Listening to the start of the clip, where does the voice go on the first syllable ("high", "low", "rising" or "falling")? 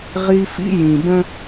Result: high